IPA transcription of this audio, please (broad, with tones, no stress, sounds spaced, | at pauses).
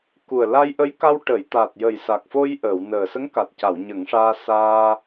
k u˨˩ ə̯ l a˧ j ʔ ə˧˥ j k a˧ w ʈ ə˨˩˨ j t̪ a˨˩ t̚ j ə˨˩ j s a˨˩ k̚ f o˧ j ʔ əː˨˩˨ w n əː˨˩ s ə˧˥ ŋ k a˨˩ t̚ c a˨˩˨ w ɲ ə˨˩˦ ŋ ʂ aː˧ s aː˧